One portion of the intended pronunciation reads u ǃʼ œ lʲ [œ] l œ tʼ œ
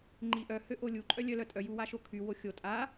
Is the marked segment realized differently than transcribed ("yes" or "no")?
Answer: no